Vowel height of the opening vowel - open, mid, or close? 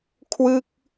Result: close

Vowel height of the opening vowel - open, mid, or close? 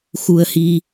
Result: close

